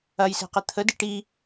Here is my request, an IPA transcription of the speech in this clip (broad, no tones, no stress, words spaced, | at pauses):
ɐjsɛ̤qə t̪ʰə diʈi